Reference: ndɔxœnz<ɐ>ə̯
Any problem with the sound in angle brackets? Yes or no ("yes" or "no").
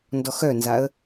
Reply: yes